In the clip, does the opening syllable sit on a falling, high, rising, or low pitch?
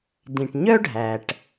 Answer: low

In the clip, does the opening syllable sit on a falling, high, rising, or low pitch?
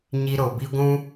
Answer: high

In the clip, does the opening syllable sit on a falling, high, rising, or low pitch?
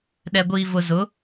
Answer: low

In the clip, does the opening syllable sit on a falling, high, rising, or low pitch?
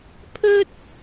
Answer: high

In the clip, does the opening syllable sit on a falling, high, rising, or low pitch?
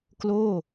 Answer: falling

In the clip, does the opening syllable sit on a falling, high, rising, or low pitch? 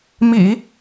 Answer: low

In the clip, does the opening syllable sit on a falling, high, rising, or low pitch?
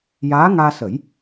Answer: rising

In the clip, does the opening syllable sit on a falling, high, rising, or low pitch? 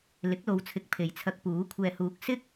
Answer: rising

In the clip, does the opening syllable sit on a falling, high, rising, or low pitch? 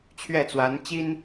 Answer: falling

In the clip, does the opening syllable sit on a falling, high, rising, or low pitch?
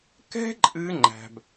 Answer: high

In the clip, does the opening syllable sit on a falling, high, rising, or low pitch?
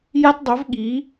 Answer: high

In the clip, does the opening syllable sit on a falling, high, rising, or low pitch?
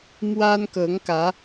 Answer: high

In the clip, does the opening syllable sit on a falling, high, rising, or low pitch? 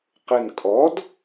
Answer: low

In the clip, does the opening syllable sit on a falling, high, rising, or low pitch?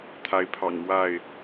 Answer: rising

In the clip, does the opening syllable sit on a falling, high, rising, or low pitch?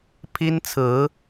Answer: high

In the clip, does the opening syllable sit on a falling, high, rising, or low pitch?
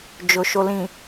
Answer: low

